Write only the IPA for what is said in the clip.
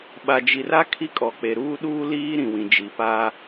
ɓ a˨ d͡ʒ i˨ r a˦ kʰ i˦ kʼ ɔ˨ k͡p e˨ ɾ uː˦ ɗ uː˦ l iː˦ ɾ ĩ˨ w ĩ˨ d͡ʒ i˨ p a˦

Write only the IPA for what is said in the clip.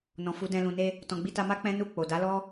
n ɔ̃˨ f u˨˦ d ɛ̃˧ l ũ˨ n e˧ | t ɔ̃˨ ɡ͡b i˧ t a˧ m a˦ k͡p ɛ̃˦ n u˦˨ k͡p o˨ d a˨˦ l ɔ˦

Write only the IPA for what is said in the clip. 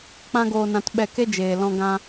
k͡p ã˦ ɡ oː˧ n ã˧ t ɓ ɛ˧ k e˦ d͡ʒ eː˨ l ɔ̃˧ ɡ ã˧

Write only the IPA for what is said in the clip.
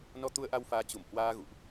n ɔ˧ t̪ u˧ ə̯ ʔ a˧ w f aː˨˦ t͡ɕ u˧˩ m h w aː˧ ɣ ṵ˧˨ ʔ

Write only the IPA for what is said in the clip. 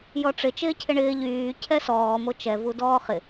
j ɔ ʈ͡ʂ ɪ t͡ʃ ɪː cʰ ɪ ɳ ɪː ʎ yː cʰ ɛ s ɔː m o t͡ʃ ɛ v u d ɔː χ ɪ

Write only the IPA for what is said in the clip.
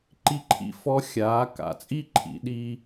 ǃ i˧ ǃʰ ḭ˧ f ɔ˧˥ xʲ aː˩˧ k a̰˩ t͡sʼ iː˥ ǃʰ ḭ˩˧ ɗ iː˧

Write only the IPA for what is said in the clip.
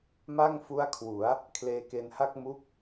m a˥˩ ŋ f u˦˥ a̯ kʰ w u˩˦ a̯ | kʰ l eː˧ k e˧ n h a˥˩ k̚ m u˦˥ k̚

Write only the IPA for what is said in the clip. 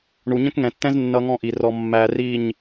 ɳ u˨ ɲ ə̃˦ k ŋ ɛ̃˨ tː ɛ̃˦ z nː ʌ˧ ŋ ɔ̃˦˨ ʔ i˨ r ɔ˧ mː æ˧ r i˦˨ ɲ

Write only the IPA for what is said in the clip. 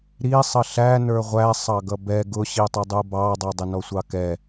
ɾ i sˤ ə ɬ æ n ə˞ ʁʷ æ sˤ ɑ ɡ ʌ b ɛ ɡ ʊ ɕ i tˤ ʊ dˤ u b ɑ dˤ ʌ dˤ ɪ n ɔ sʷ ɑ k ɛ

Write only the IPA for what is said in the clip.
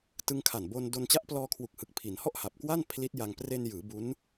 t ɯ˧ ŋ kʰ a˨˩ n b o˧ n d o˧ n t͡ɕ a˦˥ ʔ p l ɔː˧ kʰ w u˨˩ k̚ h ɯ˨˩ k̚ pʰ i˩˦ n h ɔ˥˩ ʔ h a˨˩ p̚ k w a˥˩ n pʰ l i˦˥ t̚ j a˧ ŋ p r e˧ n j ɯː˩˦ b u˦˥ n

